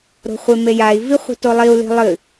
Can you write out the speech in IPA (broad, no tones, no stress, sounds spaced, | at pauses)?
ɾ o̤ χʷ e m e j a i̯ v i χʷ i̤ t o lˠ i u̯ l i̤ lˠ ɨ